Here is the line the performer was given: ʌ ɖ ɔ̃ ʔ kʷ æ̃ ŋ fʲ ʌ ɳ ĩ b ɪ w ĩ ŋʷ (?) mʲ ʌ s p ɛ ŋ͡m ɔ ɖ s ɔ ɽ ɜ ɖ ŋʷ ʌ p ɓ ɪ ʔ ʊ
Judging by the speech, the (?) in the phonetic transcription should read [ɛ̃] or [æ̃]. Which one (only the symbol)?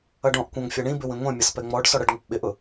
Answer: ɛ̃